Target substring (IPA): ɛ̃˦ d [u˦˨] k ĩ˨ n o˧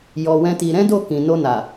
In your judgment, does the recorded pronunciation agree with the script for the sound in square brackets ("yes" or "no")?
no